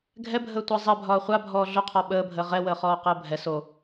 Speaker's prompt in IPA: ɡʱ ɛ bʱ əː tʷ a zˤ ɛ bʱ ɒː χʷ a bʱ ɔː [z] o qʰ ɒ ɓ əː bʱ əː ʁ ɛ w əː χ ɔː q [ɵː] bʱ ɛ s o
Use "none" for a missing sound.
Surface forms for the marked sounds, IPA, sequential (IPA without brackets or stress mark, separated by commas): ɮ, əː